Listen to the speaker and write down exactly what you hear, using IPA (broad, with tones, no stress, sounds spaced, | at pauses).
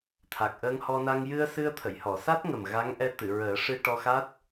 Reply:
t̪ʰ a˨˩ k̚ ʔ əː˧ ŋ h ɔ˧ n a˧ ŋ j ɨ˧ ə̯ s ɨ˧ ə̯ t̪ʰ ə˨˩˨ j h ɔ˨˩˨ s a˦˥ t̚ ŋ ə˨˩ m ɣ a˧˥ ŋ ʔ ɛ˧˥ t̪ ɨ˨˩˨ ɹ əː˨˩˦ ʂ ɨ˧ ʈ ɔ˧ x a˦˥ t̚